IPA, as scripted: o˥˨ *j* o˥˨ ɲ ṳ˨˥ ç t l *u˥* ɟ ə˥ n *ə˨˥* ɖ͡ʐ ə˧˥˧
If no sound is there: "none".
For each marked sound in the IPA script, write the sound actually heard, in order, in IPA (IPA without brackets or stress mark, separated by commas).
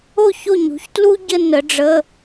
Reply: ç, u˥, ə˨˥